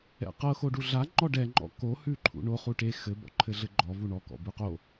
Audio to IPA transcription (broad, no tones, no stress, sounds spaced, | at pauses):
ɛ̰ q ɤ x o ɖ u ɮ a ŋ͡ǃ ɔ ɖ ɛ ŋ͡ǃ ɔ̰ k o h ʉ ǃʰ ṵ ɳ o χ u ʈ e x ɘ b ɔ̰ ǃʰ ɘ ɮ ɘ ɡ͡ǃ ɔ v u ɳ ɔ k ɔ̰ b ʉ q o